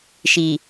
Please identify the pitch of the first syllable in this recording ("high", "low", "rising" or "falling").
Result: low